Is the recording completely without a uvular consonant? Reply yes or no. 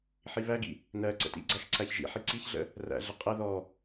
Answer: no